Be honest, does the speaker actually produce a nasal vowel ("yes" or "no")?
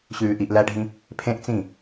yes